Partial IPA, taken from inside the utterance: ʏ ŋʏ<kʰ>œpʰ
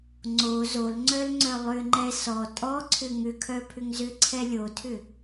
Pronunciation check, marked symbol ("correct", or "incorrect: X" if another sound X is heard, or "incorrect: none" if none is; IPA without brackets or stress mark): correct